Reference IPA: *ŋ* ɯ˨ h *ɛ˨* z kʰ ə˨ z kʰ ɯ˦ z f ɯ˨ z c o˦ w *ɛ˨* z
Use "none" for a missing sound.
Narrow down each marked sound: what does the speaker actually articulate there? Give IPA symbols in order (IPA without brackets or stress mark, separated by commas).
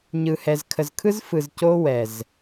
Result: ɲ, ɛ˨, ɛ˨